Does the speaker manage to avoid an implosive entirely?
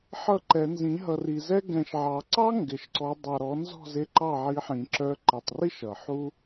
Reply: yes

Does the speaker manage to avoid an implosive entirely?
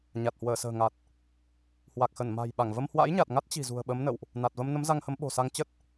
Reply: no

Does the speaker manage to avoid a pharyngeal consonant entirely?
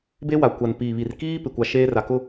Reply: yes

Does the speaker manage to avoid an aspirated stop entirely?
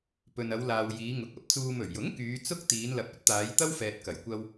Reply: yes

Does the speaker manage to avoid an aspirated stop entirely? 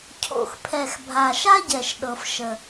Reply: no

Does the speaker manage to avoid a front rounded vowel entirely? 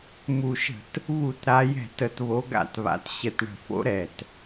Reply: yes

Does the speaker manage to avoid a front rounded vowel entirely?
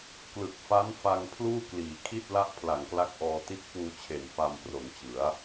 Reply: yes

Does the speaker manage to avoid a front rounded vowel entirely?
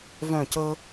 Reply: no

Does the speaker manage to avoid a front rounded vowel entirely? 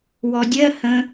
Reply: yes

